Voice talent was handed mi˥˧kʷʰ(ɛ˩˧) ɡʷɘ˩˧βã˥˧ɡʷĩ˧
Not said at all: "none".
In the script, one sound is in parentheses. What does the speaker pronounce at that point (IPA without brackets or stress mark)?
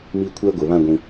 ɛ˥